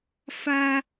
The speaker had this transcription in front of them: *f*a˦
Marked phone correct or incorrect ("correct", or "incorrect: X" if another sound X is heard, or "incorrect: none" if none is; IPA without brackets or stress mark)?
correct